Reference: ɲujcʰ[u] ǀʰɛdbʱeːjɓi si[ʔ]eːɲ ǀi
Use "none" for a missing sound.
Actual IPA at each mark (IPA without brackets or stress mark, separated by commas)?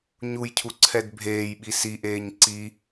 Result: u, ʔ